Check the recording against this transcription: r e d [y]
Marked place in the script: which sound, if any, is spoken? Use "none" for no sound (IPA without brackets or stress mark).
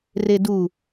u